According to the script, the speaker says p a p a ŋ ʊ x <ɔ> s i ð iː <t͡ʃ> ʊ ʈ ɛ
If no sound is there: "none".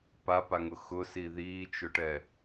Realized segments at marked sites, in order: ʊ, t͡ʃ

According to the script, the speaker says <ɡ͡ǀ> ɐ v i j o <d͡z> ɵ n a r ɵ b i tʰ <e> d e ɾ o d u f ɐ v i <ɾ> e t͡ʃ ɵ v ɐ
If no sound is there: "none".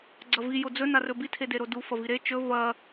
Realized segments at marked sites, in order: ɡ͡ǀ, d͡z, e, ɾ

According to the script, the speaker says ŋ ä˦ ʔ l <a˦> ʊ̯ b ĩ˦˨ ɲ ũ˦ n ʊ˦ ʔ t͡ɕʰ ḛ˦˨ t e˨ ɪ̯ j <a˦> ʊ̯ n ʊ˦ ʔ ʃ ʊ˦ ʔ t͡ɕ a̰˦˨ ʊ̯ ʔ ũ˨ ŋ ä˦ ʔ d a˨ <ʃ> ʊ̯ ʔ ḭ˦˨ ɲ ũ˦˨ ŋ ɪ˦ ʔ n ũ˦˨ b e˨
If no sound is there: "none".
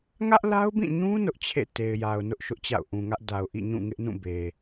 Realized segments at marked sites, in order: a˦, a˨, none

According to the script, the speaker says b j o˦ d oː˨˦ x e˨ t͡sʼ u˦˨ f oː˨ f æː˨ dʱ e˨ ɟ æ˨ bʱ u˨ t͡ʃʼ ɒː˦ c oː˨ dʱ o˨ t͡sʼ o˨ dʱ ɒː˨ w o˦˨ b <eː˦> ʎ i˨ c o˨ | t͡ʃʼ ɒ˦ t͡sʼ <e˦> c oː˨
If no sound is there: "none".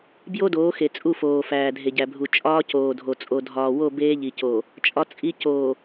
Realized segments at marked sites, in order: eː˦, i˦

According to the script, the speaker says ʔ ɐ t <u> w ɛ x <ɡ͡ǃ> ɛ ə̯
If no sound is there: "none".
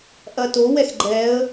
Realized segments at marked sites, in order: o, ɡ͡ǃ

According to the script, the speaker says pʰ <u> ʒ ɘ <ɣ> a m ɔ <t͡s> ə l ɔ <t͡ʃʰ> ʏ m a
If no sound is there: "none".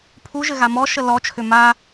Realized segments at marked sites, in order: u, ɣ, ʃ, t͡ʃʰ

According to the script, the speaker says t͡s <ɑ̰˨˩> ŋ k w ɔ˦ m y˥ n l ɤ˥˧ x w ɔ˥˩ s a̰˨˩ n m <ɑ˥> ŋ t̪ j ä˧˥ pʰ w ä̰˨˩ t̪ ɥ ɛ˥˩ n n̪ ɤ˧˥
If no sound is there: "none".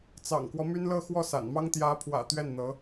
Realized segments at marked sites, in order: ɑ̰˨˩, ɑ˥

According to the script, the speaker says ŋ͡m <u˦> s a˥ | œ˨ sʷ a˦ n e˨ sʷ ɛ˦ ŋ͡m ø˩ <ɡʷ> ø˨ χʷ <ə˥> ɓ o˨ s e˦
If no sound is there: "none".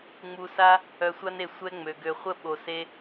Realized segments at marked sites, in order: u˨, ɡ, ə˥

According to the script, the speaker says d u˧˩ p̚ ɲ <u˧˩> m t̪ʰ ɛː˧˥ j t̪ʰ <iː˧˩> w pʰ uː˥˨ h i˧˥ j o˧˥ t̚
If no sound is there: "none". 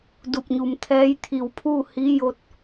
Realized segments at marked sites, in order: u˩, iː˧˩

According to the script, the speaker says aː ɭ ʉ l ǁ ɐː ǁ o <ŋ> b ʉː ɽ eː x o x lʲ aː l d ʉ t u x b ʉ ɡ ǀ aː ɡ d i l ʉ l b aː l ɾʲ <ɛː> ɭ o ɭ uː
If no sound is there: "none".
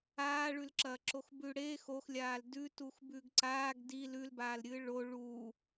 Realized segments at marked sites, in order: x, ɨː

